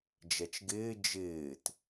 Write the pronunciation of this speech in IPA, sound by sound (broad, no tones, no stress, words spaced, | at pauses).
d͡ʒɛt͡ʃɡɪː d͡ʒɪːt